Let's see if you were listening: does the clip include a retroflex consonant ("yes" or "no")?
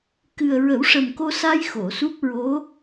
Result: yes